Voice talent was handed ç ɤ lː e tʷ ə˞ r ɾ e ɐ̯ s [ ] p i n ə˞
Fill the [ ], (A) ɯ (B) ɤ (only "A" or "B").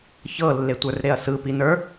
A